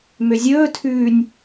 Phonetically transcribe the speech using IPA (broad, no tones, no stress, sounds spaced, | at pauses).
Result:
m ø zʲ ɵː tʰ ʉː nʲ